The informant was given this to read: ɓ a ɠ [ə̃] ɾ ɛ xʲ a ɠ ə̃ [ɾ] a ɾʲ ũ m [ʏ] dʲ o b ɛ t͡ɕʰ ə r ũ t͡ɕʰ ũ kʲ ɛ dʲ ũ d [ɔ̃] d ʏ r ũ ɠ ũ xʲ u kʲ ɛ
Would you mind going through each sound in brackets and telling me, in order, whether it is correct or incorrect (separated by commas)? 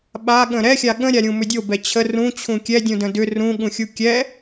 correct, incorrect, correct, incorrect